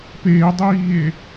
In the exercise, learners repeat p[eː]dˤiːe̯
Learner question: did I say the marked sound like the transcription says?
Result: yes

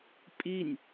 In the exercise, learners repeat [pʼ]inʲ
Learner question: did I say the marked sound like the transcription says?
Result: yes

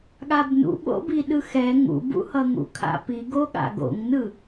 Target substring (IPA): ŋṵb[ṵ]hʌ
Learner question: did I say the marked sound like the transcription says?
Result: yes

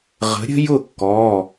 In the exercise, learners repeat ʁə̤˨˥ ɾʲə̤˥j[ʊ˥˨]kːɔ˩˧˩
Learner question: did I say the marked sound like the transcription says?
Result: yes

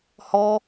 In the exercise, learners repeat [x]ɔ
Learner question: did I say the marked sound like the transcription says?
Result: no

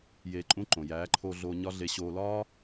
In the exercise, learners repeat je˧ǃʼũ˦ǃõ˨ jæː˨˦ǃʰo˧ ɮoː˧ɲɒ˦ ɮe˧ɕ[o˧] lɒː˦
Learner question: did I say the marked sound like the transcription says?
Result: no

